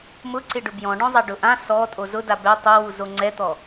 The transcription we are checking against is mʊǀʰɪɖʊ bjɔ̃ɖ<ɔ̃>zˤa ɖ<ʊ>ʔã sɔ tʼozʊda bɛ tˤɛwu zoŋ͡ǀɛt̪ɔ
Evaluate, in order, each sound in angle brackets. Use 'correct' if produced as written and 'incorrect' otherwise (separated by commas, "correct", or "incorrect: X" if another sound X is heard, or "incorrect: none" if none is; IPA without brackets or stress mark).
correct, correct